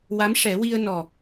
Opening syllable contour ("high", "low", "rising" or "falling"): rising